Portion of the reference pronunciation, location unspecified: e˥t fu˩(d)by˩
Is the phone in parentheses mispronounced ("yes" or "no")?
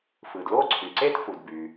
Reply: no